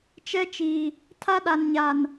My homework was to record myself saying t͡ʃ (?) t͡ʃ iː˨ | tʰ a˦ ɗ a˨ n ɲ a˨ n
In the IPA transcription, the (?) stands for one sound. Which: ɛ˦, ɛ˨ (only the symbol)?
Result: ɛ˦